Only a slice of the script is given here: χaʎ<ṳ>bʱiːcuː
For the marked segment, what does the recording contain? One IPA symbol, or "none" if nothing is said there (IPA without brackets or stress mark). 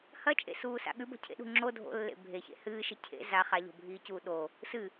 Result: o̤